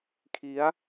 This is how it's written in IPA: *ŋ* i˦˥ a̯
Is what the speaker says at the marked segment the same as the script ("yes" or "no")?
no